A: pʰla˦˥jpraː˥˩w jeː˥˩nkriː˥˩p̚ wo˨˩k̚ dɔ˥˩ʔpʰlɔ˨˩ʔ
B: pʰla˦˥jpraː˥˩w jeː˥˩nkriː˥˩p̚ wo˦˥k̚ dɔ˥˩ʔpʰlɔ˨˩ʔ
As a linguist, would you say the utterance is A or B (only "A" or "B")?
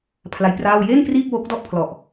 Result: B